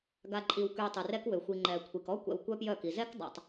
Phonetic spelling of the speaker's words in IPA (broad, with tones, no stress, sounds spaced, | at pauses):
ɡ a˨ ǃʼ i˨ w k y˨ tˤ y˨ r ɛ˦ k w ø˨ xʷ i˨ ŋ͡ǃ ɛ˨ kʷʰ i˨ k ɔ˦ kʷ ɛ̰˨ w kʷ œ˦ p j œ˦˨ k i˨ z ɛ˦ k dˤ a̰˨ tˤ